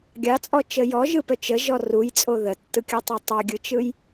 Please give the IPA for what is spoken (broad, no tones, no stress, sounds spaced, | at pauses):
ɡʲ ɑ t͡sʼ ɔ t͡ʃ ə j ɔ ʒ ɯ p œ t͡ʃ ə ʒ ɔ r u j t͡sʼ o ð ə tː ɯ kʲ ɯ tˤ ɑ tˤ œ ɡʲ ɯ t͡ʃ ɯ j